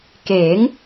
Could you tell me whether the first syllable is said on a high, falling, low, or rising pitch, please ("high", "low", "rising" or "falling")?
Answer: rising